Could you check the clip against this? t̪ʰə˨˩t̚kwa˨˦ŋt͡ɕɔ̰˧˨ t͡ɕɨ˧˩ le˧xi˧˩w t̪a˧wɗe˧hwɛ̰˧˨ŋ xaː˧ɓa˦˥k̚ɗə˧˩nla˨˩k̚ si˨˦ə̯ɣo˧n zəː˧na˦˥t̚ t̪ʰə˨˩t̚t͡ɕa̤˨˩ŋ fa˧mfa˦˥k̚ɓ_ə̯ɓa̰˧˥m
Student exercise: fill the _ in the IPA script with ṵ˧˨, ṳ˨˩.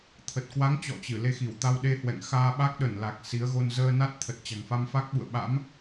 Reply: ṵ˧˨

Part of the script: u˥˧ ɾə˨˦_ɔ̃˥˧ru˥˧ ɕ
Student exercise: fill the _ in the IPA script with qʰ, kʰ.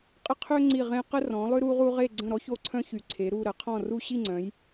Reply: qʰ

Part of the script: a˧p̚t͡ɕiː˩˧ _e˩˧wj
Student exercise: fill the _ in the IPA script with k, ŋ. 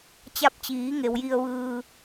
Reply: ŋ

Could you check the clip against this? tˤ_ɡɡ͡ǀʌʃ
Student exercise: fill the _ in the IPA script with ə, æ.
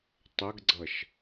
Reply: ə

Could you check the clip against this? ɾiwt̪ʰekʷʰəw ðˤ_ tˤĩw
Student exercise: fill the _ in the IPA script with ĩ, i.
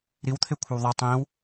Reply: i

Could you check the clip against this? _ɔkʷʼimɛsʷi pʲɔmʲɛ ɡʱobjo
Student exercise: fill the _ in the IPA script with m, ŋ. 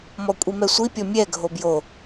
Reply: m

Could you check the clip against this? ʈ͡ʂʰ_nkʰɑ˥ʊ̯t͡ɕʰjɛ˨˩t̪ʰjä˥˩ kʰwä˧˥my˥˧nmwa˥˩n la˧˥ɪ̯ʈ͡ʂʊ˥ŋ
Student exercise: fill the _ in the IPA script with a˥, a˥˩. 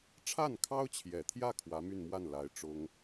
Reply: a˥˩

